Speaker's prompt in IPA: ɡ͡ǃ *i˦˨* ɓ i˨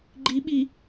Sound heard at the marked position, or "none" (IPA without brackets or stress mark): i˨˦